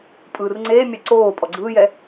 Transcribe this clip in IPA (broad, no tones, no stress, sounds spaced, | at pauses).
pʼ ɯː r ŋ͡ǀ eː mʲ ɛ ǀ oː pʼ ɔ ɡ͡ǀ ɯː j ɛ